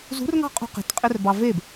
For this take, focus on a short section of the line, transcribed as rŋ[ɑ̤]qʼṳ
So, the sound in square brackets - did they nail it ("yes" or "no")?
yes